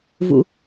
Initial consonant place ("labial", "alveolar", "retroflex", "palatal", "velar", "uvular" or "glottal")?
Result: labial